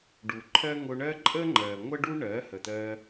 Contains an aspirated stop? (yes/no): yes